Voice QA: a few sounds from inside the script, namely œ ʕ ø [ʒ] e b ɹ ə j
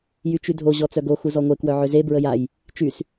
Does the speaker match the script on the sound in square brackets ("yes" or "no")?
no